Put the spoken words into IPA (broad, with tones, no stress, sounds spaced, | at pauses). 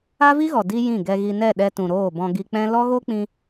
a˦ v i˦ ɣ ɔ˨ d i˦ j ĩ˦˨ ɡ ɛ˧ ɣ i˧ n ɛ˦˨ ɗ ɛ˧ t ũ˨ ɾ oː˦˨ b ɔ̃˧ ɡ i˧ k͡p ɛ̃˦ l ɔ˦ ɣ o˦ k͡p ĩ˧